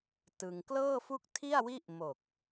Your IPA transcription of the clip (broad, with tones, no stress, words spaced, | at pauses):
tɯ˧ŋ klɤː˥˩fu˥˩k̚tʰi˥˩a̯wi˥˩ʔ mo˨˩k̚